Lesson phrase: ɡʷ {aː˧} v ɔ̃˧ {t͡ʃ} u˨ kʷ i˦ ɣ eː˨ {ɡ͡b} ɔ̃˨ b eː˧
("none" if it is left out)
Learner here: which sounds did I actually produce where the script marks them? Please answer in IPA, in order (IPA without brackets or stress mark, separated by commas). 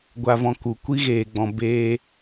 a˧, k, ɡ͡b